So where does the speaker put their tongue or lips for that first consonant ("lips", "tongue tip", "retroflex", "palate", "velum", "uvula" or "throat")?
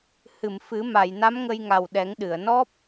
throat